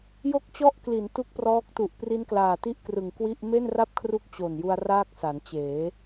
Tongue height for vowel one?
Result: mid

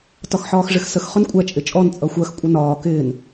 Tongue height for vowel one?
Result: low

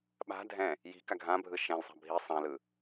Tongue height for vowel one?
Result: low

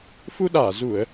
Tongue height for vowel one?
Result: high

